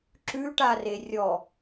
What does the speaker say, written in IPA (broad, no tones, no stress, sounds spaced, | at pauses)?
ǁ ʉ ʈ a r e rʲ ɔ